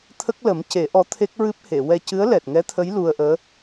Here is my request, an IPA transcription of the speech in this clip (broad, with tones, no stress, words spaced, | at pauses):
t̪ʰə˦˥k̚lə˨˩˦mce˨˩˦ ʔɔ˧˥t̪ʰe˦˥k̚ɹɨ˦˥p̚he˨˩˨ wɛ˧cɨ˧˥ə̯lɛ˨˩t̚ ŋɛ˧˥t̪ʰə˧˥j lu˧ə̯ʔəː˧˥